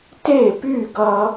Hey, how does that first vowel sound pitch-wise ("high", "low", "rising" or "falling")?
falling